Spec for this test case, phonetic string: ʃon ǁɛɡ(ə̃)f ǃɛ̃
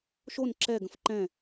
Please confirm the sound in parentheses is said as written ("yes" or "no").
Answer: yes